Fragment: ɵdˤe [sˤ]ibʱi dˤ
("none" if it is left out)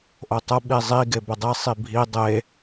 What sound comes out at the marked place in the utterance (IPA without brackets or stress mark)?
sˤ